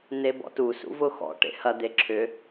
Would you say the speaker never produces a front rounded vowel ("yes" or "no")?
no